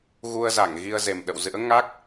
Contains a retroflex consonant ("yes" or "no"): no